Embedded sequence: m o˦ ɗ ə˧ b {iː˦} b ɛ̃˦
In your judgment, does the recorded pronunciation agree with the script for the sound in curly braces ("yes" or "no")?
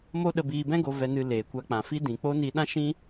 no